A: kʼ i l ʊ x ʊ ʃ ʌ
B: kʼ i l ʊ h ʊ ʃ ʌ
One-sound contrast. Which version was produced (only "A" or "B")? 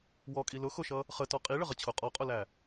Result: A